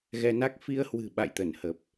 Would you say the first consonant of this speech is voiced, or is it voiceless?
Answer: voiced